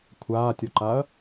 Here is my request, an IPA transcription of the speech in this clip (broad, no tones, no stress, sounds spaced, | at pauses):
kʷʰ aː tʲ ɔ ǃ a ɐ̯